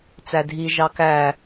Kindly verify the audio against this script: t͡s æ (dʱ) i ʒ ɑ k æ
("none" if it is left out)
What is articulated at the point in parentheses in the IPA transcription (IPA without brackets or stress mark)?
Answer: dʱ